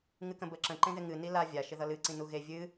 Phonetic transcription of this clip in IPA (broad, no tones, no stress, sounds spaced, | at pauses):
ŋ ɨ k ə̃ b ə ǁ ə̃ ǃ ẽ ð ɪ ŋ ɨ n i l a vʲ a ʃ ɪ ð ʌ l ɨ ǀ ĩ n u ɣ e vʲ ɨ